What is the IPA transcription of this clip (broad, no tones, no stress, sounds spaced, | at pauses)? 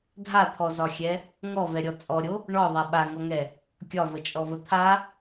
dʱ a t̪ʰ ɔ z ɒ xʲ ɛ | ŋ ɔ v ɛ ɾʲ ɔ t͡sʼ ɔ ɾʲ o | ɳ ɔ ðˤ a ɓ a ŋ ɔ ŋ ɛ | kʲ ɒ v ə t͡ʃʼ ɔ v ə t̪ʰ a